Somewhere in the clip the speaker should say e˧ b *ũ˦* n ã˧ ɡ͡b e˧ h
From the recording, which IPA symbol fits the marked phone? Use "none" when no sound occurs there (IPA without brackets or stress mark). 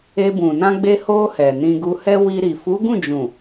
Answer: ũ˨